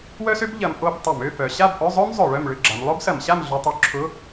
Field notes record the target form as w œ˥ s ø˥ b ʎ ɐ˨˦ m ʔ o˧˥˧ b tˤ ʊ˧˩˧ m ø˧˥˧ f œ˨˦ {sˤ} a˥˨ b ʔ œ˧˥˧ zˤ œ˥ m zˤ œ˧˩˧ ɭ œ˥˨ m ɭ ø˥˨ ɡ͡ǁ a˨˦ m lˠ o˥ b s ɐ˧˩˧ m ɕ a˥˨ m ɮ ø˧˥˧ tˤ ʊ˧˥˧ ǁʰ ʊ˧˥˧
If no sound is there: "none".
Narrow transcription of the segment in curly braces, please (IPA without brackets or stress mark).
ɕ